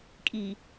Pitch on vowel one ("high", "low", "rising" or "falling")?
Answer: low